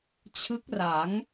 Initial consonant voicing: voiceless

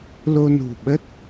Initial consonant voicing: voiced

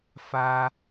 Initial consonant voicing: voiceless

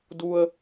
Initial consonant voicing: voiced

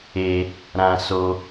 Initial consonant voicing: voiced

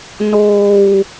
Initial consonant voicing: voiced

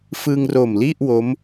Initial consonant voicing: voiceless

